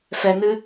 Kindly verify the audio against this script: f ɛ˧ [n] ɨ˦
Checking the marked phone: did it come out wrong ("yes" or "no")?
no